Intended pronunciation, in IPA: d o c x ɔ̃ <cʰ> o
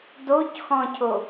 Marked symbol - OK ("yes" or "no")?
yes